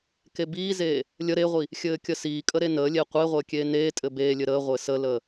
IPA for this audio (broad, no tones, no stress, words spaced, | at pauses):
kebiːzeː | lʲə ɾeʁʷi | xʲɘːkʲəsiːkʼə ɾenəːlʲe qʷeʁʷəː kʲeːneːtʼɘ beːlʲɘ ɾəːʁʷɘː sələː